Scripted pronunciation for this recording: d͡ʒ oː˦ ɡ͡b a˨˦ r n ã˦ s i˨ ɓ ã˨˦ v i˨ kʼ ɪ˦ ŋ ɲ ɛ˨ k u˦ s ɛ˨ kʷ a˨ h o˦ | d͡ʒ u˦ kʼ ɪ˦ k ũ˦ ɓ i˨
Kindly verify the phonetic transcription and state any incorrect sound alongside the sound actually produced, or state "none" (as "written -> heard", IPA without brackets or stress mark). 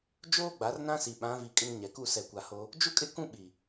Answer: none